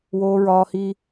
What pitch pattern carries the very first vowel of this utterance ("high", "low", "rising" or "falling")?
high